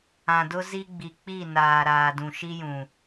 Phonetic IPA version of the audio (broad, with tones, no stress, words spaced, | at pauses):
ã˨dʊ˦zi˦ɡ͡bi˨ k͡pi˦˨ naː˨ ɾaː˨dũ˨ʃi˦jũ˨